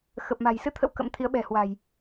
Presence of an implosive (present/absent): present